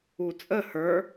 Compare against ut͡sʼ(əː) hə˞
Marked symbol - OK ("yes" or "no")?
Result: no